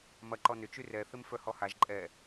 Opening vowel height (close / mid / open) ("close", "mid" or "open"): open